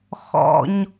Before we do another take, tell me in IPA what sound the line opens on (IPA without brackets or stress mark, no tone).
x